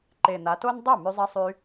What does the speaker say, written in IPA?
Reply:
ǃ e˨˩ n̪ a˩˧ t o˦ n dˤ o˥˩ m y˦ zˤ i˦ sˤ y˦

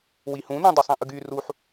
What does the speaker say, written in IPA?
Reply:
w i h ũ n ũ dˤ u sˤ ĩ ʔ ɯ ɡ y r u ħ

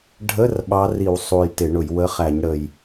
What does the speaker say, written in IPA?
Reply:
ɖʱ ə˧˥˧ r ɓ ɑ˧˥ r i˧˩˧ w sˤ u˨˩ j t ɪ˧˩˧ ɳ ʊ˧˩˧ j w ə˧˥˧ χ æ˧˩˧ ɲ ɽ ə˨˩ j

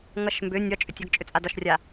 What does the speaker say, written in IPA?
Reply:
ŋ ʌ ʃ m b ʏ nʲ ɒ t͡ʃʼ ʏ tʲ ɒ ɡ t͡ʃʼ ʏ t͡sʼ a d ɒ ʃ rʲ a

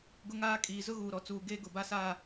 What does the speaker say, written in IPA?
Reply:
ɡ ʊ˦ ŋ aː˦ kʼ iː˨ z ʊ˦ ɣ uː˨ ɾ ɔ˨ t͡s uː˨ ɡ eː˦ ɡ ʊ˨ b a˦ s aː˦˨

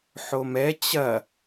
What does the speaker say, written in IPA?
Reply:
ħ o m ɛ t͡ɕ ɐ

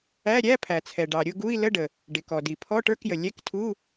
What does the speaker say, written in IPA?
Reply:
æ˧˥˧ ɾʲ æ˧˥˧ pʰ æ˩ t͡sʰ ɛ˩ ɖ ɑ˩ ɾʲ ʊ˧˥˧ ɡ u˧˥˧ i̯ l ə˧˥˧ ɖ ə˩ | ɖ ɪ˩ k ɔ˩ d i˩ pʰ ɔ˧˥˧ ʈ ə˞˧˥˧ k j ə˩ lʲ ɛ˧˥˧ k tʰ u˧˥˧

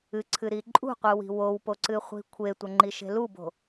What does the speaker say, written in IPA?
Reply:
ɨ ǀʰ ɨ ɾ i ǃʼ ṳ qʷ ɨ w i̤ w o w p o ǀ ɨ χʷ i̤ kʷʰ e tʷ ɐ ŋ͡ǃ i ʃ e̤ l u b o̤

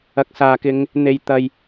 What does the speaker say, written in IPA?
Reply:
ɐ˨˥ k̚ s aː˨ k ɪ˧ ŋ | n̪ e˨ j t̪ ɐ˨ j

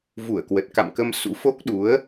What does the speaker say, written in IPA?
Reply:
v u˧˩ ə̯ k w ə˨˩ t̚ k a̰˧˨ m k ə˧ m s ṵ˧˥ f o˦˥ k̚ ɗ u˨˦ ə̯

